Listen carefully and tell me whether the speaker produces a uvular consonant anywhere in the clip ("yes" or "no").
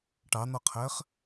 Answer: yes